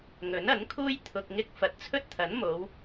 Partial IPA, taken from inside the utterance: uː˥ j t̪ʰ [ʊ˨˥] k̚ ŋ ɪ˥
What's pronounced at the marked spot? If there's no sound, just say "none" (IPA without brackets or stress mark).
ʊ˧